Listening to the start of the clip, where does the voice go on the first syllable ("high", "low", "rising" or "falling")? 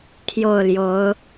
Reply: falling